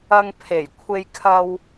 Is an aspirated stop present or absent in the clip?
present